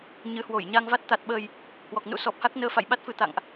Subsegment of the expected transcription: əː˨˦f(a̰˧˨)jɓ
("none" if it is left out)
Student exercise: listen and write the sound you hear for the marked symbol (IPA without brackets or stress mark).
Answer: a̰˧˨